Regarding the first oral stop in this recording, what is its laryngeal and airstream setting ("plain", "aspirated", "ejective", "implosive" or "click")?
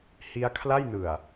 aspirated